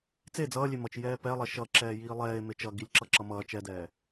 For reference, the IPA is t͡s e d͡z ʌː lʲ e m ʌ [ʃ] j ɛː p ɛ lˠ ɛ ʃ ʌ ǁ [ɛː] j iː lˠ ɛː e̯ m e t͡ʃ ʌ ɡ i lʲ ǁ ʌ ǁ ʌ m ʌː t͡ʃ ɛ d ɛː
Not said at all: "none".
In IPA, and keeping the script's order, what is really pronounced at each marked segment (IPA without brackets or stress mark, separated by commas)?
t͡ʃ, ɛː